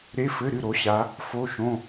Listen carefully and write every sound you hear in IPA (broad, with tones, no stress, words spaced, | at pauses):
ɾe˧˥˧fɘ˧˥˧ ɾɨ˥˩ ɾo˨˦ɕa˨˦ | fo˧˥˧ʃõ˧˥˧